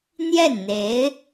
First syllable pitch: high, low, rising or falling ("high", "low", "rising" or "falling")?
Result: falling